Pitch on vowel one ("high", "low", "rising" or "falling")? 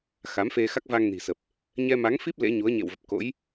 rising